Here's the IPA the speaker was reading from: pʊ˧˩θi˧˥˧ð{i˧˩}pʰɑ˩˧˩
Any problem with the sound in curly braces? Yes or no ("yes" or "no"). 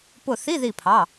no